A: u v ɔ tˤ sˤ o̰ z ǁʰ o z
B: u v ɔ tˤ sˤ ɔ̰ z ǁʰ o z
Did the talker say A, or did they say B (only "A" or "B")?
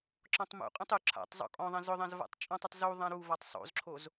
A